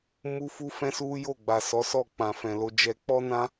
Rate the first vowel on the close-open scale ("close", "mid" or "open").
close